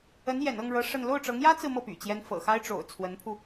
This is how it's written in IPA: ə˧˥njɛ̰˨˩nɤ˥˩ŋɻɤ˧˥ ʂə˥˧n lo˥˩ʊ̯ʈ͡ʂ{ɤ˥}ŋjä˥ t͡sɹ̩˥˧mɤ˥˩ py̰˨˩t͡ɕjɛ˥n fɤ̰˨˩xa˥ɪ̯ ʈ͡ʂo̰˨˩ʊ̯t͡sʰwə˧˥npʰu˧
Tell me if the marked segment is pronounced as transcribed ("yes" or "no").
no